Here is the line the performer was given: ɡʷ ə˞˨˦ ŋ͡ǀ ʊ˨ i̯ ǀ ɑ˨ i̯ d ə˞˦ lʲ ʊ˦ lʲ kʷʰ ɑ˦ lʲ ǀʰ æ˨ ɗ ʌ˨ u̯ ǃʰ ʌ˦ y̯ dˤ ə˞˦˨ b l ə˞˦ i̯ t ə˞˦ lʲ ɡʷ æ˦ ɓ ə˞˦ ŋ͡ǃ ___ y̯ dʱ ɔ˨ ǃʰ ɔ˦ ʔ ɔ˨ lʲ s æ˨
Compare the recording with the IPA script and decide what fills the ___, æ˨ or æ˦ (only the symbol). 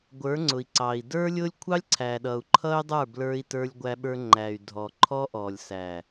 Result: æ˨